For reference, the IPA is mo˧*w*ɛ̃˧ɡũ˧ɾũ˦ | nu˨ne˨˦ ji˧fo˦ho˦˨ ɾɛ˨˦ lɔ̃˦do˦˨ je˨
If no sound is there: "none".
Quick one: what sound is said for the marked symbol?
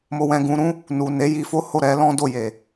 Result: w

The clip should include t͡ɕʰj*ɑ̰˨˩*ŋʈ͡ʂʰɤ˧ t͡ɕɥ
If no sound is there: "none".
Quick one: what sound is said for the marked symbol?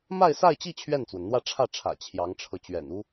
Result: ɑ˧˥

